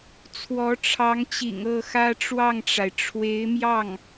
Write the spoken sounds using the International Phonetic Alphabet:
t͡sʰ w ɔ˧˥ ʈ͡ʂʰ ɑ˧˥ ŋ t͡ɕ ḭ˨˩ ŋ ɤ˥˩ x ä˥ ʈ͡ʂ w ɑ˥˩ ŋ ʈ͡ʂ a˩ ɪ̯ ʈ͡ʂʰ w e˧˥ ɪ̯ m j ɑ˥˩ ŋ

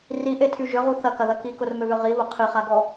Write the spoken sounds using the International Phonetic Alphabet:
r i ʔ e tʰ y ʒ ʏ ʁ u θ ɐ k ɐ ð ɐ k i k ʊ r m ʏ β ʏ ʁ i β ʊ qʰ i χ a ɡ ɔ

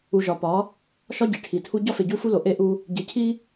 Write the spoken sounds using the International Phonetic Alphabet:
u˨ ʒ ɒ˨ p ɒ˨˦ | ʃ ɒ˦ ɟ e˨ ʈʰ i˨ tʰ u˦ ɟ ɒ˦ f e˨ ɟ u˦ f u˦ l o˨ ʔ e˦ ʔ u˦ | ɟ e˨ cʰ i˦

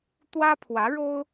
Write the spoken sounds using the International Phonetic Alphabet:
t̪ w ä˥ pʰ w ä˧˥ ɻ o˥ ʊ̯

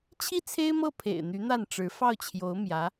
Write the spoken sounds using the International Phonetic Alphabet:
t͡ɕʰ i˥˩ t͡sʰ e˥ ɪ̯ m ɤ˥˩ pʰ ḛ˨˩ ɪ̯ n̪ y˧˥ n̪ a˥˩ n ʈ͡ʂ ɻ̩˧˥ f ɑ˥˩ ʊ̯ t͡ɕʰ j o˧˥ ʊ̯ m j ä˧˥

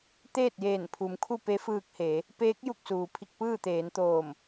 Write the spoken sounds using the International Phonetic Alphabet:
t̪ eː˥˨ t̚ j eː˧˩ n pʰ u˩˧ m kʰ u˥˨ p e˧˥ f ɯː˧ k̚ h eː˩˧ | p eː˧˥ k̚ j u˧˩ k̚ s uː˩ pʰ i˧ k̚ p ɯː˥˨ t̪ eː˩˧ n t̪ oː˧˩ m

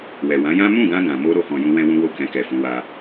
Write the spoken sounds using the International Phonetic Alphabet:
w ɛ˨ w ã˨˦ j ã˦ m ũ˦˨ ɡ ã˧ ɡ ã˨ m o˧ ɾ o˧ h ɔ̃˨ j ũ˧ w ɛ̃˦ w ũ˦ w o˦˨ k ɛ̃˧ k ɛ˨ f ũ˨˦ w a˧

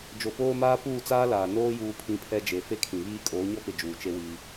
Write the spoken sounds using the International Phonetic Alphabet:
d͡ʒ o˨ p oː˦ m aː˦ p uː˦˨ t͡s aː˦ l aː˨ n oː˦ j uː˦ pʰ ĩ˦ pʰ ɛ˦ d͡ʒ e˨ f e˦ kʰ ĩ˨ β iː˦ kʼ oː˨˦ ɲ ɔ˦ p ɪ˨ d͡ʒ uː˨ t͡ʃ e˦ w iː˦

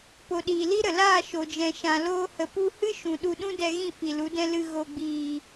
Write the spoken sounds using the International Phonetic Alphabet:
p o˨ ɗ iː˨ l i˦ ɾ ə˨ l aː˦˨ ʃ o˨ d͡ʒ ɛ̃˨ ʃ ã˨ l oː˧ h ə˨ p u˧ h ɨ˦ ʃ ũ˨ ɗ u˧ ɗ ũ˦ d ɛ˧ ɣ ĩ˦˨ f i˨ l u˨˦ d ɛ̃˦ l ɨ˧ ɣ o˨ ɡ͡b iː˨

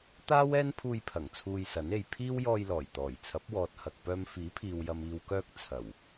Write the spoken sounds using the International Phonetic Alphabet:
t̪ aː˥ w ɛː˥ n pʰ uː˧ j pʰ ɐ˨˩ ŋ t͡sʰ uː˧ j s ɐ˨˥ n e˨˧ j pʰ iː˥ w j ɔː˧ j l ɔː˨˩ j t̪ ɔː˨˩ j t͡sʰ ɐ˨˥ p̚ w ɔː˨ t̚ h ɐ˨ k̚ p œː˧ m f iː˨˥ pʰ iː˨ w j ɐ˨ m iː˨ w k œː˧ k̚ t͡sʰ ɐ˨˩ w

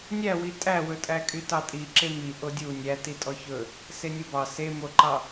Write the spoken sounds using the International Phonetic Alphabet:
nʲ æ w i tʼ æ w ɵ tʼ æ kʼ y t ɑ tʼ i ǁ e m i ʔ o dʲ u nʲ æ t i tʼ ɔ ç ɵ | s e nʲ u b ɑ s e m o ǃ ɑ

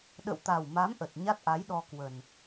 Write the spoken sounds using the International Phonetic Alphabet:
ɗ ə̰˧˨ w t̪ a˨˩ w m a˨˦ m ʔ ə˨˩ t̚ ɲ a˦˥ t̚ ʔ a˨˦ j ɗ ɔ˧ k w ə˨˩ n

